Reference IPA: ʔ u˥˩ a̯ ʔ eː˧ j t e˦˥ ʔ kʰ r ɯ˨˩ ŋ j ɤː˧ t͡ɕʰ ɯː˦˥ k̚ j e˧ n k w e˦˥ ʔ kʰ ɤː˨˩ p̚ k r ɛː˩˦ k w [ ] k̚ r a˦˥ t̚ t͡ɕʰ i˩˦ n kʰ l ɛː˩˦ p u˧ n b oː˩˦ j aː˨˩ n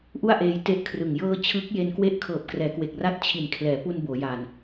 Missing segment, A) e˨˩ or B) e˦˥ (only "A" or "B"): A